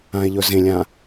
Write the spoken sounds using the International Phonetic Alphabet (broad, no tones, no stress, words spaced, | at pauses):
ãe̯ʎɵzẽlʲã